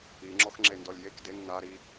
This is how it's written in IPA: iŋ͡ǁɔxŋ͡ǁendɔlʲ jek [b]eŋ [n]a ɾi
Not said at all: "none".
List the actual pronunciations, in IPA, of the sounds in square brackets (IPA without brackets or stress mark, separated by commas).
d, n